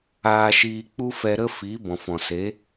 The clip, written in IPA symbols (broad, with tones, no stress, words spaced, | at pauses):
aː˧ʃiː˧ k͡pu˦fɛ˧ɾə˦ fi˨˦ bɔ̃˨fɔ̃˨se˨˦